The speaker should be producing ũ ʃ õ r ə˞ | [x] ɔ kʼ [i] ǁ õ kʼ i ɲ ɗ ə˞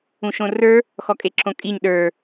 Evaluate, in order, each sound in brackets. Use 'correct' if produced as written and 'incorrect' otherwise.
correct, incorrect

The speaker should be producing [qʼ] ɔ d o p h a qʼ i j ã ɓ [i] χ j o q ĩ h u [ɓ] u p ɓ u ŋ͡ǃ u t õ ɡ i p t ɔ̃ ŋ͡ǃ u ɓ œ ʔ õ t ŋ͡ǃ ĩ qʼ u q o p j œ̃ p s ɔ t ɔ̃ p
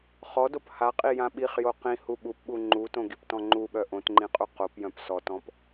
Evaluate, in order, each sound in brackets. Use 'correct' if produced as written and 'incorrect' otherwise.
incorrect, correct, correct

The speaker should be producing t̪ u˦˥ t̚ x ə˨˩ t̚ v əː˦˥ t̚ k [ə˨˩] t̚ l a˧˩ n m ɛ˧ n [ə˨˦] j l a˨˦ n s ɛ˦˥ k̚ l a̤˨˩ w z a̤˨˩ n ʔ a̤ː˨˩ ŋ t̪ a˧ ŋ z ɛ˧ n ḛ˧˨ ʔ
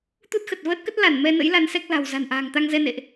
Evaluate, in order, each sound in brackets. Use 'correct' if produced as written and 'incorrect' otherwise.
incorrect, incorrect

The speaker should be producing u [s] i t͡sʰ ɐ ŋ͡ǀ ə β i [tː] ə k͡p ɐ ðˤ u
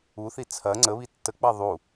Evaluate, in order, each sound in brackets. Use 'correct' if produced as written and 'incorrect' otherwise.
incorrect, correct

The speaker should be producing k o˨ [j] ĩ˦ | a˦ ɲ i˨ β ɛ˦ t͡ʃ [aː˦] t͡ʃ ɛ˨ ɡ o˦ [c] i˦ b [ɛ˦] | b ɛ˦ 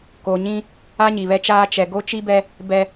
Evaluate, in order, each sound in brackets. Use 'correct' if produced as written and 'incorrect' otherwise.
incorrect, correct, incorrect, correct

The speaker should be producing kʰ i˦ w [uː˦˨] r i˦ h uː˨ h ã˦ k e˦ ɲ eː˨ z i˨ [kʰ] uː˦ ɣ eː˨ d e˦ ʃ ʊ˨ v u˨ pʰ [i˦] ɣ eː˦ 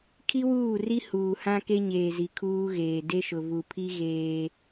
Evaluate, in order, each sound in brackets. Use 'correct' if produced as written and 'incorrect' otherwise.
correct, correct, correct

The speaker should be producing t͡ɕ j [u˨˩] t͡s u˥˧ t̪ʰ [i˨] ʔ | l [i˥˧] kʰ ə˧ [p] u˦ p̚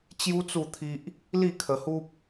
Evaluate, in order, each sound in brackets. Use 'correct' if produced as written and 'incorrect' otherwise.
incorrect, incorrect, correct, incorrect

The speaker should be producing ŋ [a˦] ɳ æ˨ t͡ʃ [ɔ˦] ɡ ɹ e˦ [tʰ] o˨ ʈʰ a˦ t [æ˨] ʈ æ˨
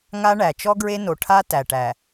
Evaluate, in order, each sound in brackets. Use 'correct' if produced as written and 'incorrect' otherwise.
correct, correct, incorrect, correct

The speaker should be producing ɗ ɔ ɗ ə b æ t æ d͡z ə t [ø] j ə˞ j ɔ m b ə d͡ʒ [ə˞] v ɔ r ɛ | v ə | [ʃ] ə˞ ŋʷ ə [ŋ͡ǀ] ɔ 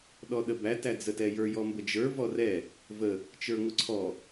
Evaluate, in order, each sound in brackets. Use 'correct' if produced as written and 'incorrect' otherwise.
incorrect, correct, incorrect, incorrect

